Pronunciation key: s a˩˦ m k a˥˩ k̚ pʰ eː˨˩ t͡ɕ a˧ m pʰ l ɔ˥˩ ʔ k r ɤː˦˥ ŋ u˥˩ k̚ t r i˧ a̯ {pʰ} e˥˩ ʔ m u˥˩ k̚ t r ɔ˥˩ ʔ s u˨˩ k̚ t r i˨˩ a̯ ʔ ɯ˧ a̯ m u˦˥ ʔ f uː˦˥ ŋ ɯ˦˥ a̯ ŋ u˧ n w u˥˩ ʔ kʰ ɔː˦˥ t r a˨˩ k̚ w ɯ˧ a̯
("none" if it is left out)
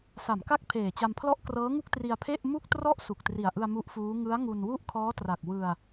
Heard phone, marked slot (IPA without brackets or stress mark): pʰ